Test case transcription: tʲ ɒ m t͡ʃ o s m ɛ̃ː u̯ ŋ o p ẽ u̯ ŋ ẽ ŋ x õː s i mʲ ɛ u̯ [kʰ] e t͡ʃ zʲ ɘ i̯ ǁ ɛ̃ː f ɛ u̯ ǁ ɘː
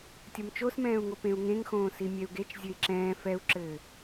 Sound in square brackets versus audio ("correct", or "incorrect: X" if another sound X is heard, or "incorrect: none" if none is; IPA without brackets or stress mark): incorrect: ɡ